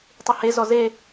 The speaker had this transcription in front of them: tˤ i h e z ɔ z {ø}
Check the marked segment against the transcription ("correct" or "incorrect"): incorrect